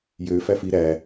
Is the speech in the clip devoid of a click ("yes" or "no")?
yes